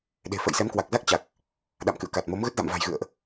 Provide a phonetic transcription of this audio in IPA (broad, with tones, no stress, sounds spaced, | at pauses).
ɗ e̤˨˩ f ə̰˧˨ j s ɛ˨˦ m k w a˨˩ k̚ z a˦˥ k̚ t͡ɕ a˨˩ k̚ | ɗ a̰˧˨ m k ɨ̰˧˨ ə̯ k a˨˩ t̚ m o˨˦ m ɣ ə˦˥ t̚ z a̰˧˨ m v a̤˨˩ j ɣ ɨ̰˧˨ ə̯ ʔ